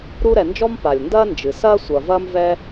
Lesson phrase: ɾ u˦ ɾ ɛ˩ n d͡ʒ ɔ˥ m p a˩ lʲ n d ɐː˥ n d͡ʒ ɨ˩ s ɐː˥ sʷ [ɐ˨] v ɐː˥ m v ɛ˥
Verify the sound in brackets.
correct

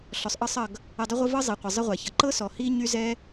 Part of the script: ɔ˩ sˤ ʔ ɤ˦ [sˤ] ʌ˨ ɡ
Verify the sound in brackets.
correct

